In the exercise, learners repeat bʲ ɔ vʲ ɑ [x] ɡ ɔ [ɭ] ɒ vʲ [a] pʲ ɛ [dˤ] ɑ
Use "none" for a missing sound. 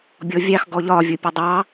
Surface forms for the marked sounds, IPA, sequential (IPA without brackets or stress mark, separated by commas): x, ʎ, ʌ, dˤ